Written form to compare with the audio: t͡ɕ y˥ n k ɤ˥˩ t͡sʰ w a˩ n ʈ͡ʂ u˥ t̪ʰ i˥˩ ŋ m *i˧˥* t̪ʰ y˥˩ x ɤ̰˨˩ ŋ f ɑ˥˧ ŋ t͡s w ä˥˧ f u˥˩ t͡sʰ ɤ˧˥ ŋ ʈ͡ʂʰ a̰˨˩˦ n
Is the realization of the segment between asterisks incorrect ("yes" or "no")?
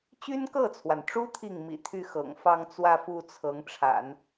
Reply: yes